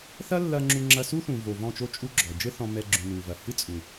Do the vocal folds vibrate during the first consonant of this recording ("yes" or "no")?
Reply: no